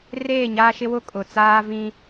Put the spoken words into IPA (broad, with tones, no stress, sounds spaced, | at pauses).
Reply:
r eː˦˨ ɲ aː˦ ʃ ɪ˦ w ʊ˦ kʼ ʊ˨ t͡s aː˦ v ĩ˦